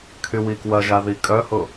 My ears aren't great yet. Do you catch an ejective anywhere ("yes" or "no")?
yes